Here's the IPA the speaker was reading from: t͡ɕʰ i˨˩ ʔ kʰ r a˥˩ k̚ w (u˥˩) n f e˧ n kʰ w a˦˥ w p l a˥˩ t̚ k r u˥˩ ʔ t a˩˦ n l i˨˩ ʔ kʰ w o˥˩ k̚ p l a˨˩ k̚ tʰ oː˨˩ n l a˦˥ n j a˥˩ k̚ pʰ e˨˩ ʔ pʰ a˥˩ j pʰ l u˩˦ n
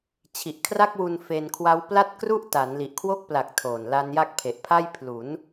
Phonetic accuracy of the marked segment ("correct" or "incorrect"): incorrect